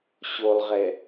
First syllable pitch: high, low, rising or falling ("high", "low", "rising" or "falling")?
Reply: low